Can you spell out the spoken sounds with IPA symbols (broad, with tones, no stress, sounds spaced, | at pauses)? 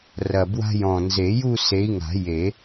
r ɐ˨˩ b w a̤˥ j ɔ̃˨˩ n z e˨˩˦ j u˥˧ s e˨˦ i̯ ŋ a̤˨˩˦ j e˨˩˦